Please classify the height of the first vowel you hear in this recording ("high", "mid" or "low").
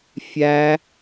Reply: low